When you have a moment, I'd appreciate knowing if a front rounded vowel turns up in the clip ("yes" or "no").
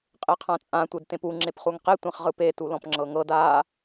no